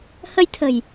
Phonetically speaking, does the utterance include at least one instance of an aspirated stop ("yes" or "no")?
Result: yes